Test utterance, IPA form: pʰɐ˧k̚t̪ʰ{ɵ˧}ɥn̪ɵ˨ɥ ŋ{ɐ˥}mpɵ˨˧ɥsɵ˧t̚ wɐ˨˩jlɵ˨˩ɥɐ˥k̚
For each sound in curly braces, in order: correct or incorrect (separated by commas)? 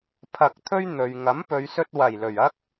incorrect, incorrect